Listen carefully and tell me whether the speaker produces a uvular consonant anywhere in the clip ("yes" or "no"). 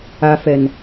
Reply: no